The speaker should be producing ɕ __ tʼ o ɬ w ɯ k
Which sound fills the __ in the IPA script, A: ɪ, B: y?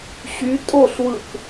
B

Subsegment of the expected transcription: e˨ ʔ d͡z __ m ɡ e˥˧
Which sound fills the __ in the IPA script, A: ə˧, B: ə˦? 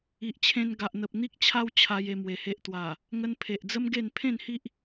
B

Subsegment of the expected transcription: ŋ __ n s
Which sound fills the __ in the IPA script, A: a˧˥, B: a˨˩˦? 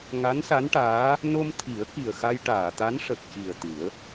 A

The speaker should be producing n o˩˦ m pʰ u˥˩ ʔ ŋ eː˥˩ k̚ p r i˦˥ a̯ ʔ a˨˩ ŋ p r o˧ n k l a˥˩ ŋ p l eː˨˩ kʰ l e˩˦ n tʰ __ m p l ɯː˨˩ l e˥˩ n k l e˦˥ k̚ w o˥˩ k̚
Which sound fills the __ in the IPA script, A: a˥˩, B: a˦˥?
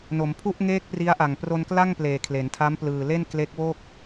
B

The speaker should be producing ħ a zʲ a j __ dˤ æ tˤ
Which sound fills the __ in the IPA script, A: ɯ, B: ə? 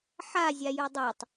A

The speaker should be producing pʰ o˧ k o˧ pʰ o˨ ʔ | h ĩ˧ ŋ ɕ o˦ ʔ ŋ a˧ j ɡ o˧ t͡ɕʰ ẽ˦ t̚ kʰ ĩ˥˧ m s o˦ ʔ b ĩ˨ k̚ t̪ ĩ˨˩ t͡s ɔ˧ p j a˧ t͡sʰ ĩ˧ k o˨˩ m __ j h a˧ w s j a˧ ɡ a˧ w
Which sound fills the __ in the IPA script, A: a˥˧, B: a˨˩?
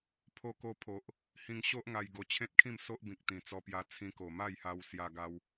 A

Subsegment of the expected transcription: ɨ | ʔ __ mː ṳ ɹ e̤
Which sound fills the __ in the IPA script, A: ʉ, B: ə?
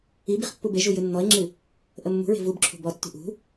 B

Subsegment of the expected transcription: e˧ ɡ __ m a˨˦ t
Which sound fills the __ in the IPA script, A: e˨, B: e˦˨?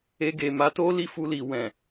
A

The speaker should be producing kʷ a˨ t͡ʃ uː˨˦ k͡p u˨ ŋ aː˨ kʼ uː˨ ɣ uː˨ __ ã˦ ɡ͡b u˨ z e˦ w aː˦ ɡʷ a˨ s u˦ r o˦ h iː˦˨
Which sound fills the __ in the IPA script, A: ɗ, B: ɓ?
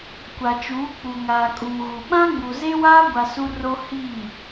B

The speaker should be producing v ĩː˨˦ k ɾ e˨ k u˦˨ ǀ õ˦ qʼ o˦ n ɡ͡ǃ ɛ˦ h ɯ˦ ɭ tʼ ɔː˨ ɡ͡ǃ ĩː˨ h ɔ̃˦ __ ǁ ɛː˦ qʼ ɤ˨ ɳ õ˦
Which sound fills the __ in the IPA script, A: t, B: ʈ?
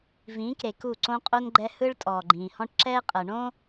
B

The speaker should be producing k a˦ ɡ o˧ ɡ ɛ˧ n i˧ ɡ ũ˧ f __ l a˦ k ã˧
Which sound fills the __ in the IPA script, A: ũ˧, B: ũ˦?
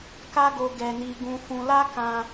A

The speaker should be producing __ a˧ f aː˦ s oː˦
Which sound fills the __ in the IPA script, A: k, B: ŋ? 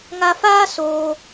B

